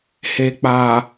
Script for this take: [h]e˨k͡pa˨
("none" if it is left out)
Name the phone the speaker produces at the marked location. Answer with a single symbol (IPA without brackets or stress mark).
h